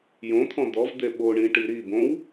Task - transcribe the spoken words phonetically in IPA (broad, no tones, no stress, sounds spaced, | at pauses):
j õ t̪ʰ ɔ̃ d̪ ɔ v d̪ e ɓ o ɳ ĩ ʈ i ɾ i b õ w